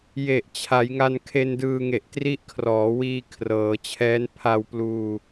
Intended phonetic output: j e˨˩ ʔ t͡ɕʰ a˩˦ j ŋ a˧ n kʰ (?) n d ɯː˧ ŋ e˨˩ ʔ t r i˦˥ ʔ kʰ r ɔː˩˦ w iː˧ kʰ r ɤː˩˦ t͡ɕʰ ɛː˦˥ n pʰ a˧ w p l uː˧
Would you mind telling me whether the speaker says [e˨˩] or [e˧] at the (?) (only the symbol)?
e˧